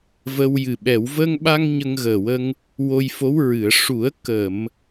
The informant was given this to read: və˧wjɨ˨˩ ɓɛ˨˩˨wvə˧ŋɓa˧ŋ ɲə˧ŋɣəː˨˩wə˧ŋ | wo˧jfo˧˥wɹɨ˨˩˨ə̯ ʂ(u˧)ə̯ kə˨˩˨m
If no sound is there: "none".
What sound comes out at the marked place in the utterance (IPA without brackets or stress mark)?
u˨˩˦